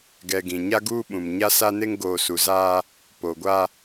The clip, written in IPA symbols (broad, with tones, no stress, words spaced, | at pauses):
ɡɛ˨ ɡĩ˨ɲa˦ ɡuː˦ ɓũ˨mɲa˦sa˦ ne˦ŋɡoː˨su˨zaː˦ | po˨ɡʷa˦